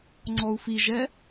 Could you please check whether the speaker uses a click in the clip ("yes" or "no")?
yes